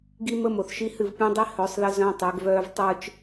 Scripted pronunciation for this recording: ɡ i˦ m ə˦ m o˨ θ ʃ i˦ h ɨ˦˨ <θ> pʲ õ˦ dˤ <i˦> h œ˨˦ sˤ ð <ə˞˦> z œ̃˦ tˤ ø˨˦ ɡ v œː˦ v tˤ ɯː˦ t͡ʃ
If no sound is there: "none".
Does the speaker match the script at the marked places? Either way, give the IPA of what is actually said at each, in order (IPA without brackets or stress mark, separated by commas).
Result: v, i˦, ə˦